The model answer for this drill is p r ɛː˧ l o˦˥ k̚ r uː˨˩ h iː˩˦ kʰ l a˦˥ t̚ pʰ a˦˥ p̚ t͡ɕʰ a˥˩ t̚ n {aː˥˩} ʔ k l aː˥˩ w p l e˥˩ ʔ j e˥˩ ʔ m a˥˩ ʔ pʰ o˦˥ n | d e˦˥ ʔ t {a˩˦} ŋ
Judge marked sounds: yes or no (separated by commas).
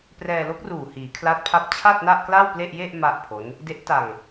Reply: no, no